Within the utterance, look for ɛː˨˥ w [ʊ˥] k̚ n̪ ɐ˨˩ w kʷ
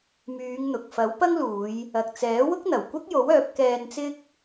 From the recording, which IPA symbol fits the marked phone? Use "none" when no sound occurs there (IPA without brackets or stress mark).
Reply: ʊ˥